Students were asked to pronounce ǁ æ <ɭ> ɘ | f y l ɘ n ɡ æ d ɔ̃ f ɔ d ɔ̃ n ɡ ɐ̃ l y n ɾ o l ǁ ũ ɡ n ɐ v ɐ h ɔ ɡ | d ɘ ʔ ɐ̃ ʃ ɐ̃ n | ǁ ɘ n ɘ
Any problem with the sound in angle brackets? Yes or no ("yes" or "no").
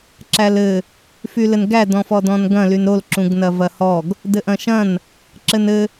yes